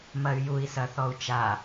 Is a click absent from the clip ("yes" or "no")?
yes